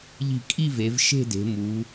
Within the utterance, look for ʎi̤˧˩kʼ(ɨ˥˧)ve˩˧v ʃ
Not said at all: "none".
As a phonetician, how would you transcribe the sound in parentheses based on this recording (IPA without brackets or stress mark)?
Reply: i˥˧